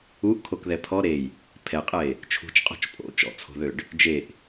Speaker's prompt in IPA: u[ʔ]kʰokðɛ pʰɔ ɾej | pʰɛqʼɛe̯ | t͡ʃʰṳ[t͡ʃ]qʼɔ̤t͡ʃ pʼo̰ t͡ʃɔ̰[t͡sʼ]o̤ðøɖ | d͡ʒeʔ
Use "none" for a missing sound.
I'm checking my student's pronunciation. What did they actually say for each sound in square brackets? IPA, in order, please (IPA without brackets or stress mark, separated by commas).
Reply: ʔ, t͡ʃ, t͡sʰ